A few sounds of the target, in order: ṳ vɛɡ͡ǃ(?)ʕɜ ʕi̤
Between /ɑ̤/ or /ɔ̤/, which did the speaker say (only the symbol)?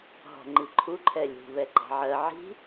ɑ̤